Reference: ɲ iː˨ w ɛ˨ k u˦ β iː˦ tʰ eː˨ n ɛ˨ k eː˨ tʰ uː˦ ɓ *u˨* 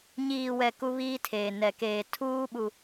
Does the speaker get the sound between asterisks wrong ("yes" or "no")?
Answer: no